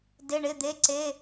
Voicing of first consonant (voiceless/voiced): voiced